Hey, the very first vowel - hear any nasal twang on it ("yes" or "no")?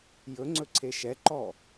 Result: no